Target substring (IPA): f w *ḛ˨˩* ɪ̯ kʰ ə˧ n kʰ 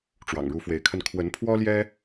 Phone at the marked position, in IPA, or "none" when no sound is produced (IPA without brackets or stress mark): e˨˦